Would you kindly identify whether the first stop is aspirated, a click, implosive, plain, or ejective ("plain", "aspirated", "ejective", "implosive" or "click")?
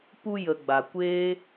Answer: plain